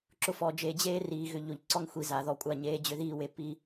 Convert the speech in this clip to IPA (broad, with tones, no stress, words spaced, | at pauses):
ǁʊ˨fɔ˨d͡ʒeː˨ d͡ʑeː˦riː˨ ɣʏ˨ʎo˨ʎǀɔ˦ŋ xʷi˨za˨ðɔ˨kʷʼa˦˨ ɲeː˦d͡ʑʏ˦ðiː˦we˨ pi˦